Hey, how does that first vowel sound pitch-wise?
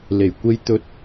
low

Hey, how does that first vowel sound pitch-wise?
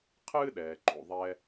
high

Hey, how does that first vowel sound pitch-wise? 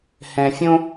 low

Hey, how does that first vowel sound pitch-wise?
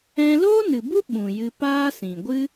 high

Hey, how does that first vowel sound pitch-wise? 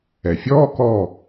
low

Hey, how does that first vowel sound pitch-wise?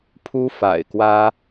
high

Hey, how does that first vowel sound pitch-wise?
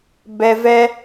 low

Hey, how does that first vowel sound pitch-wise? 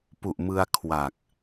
low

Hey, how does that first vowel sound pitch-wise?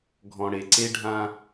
low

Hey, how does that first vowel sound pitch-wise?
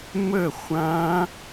falling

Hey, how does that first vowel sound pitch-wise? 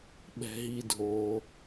low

